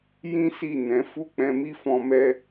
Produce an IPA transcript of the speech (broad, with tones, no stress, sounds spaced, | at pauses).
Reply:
j ĩ˦ s i˦˨ n ɛ̃˨˦ f u˦˨ k͡p ɛ̃˧ m i˦ f ɔ̃˧ m ɛ˦